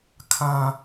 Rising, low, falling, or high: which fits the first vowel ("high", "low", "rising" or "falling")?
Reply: high